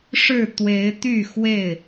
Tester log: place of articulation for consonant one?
retroflex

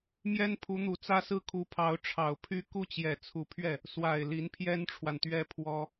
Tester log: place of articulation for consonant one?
labial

